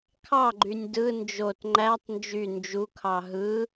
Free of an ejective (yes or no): yes